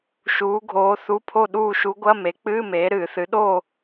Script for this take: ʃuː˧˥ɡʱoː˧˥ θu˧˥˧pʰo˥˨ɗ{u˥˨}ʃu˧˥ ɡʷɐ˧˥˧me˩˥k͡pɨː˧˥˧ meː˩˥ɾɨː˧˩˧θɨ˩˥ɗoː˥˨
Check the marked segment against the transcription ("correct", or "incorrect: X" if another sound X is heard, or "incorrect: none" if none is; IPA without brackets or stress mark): incorrect: uː˥˨